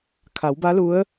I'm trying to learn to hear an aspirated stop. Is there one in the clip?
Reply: yes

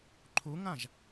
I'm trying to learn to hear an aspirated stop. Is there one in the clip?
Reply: yes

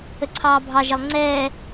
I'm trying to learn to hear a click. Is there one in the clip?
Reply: yes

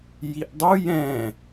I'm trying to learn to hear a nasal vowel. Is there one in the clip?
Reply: yes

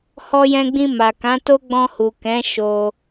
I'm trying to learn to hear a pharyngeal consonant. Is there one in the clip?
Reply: no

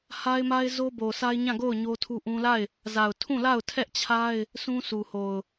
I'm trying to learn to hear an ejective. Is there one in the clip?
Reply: no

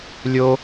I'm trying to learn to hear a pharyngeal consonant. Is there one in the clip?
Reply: no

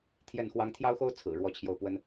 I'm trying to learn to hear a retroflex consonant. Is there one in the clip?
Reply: yes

